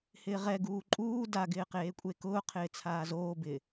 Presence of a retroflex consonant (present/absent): absent